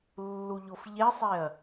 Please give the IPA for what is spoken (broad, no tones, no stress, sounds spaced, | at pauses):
lː u ʎ o f ʎ e sˤ e ɐ̯